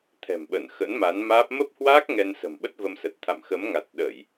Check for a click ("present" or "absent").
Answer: absent